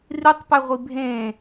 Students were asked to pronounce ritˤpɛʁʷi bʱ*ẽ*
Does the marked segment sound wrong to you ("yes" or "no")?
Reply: no